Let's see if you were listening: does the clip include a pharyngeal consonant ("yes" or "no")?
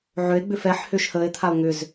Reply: yes